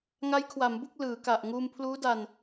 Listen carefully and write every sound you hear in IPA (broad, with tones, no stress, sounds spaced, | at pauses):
ŋ a˦˥ j kʰ w a˩˦ m b u˥˩ k̚ l ɯː˩˦ k a˨˩ ʔ ŋ uː˧ m pʰ l uː˦˥ d a˧ n